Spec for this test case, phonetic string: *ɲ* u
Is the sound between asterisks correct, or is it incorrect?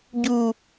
incorrect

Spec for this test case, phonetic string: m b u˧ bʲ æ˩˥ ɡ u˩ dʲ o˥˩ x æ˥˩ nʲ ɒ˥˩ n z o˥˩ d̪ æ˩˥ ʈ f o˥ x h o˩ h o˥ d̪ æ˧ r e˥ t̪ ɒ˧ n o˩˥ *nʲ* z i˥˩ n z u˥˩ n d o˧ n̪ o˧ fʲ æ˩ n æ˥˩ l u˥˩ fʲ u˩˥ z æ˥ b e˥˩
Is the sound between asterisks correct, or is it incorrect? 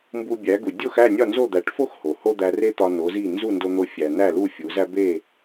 incorrect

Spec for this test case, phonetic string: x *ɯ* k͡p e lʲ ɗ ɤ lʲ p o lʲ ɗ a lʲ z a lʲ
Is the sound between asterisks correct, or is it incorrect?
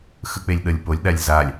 correct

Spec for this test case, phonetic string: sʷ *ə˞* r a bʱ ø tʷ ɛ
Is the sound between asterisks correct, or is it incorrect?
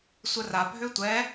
incorrect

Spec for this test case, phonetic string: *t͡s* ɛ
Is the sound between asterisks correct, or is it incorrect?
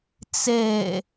correct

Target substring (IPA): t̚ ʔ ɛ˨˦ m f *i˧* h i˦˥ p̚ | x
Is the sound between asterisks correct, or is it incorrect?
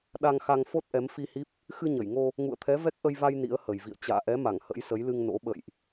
correct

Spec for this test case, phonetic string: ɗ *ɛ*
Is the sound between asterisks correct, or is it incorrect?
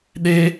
incorrect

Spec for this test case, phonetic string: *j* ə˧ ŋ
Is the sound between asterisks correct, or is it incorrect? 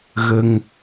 incorrect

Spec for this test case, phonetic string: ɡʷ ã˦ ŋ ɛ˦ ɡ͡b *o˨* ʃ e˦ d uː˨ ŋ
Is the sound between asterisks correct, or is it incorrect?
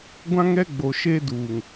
correct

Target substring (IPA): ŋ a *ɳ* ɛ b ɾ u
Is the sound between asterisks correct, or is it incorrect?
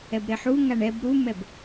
correct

